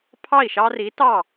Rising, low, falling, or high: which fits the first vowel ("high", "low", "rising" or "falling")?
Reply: falling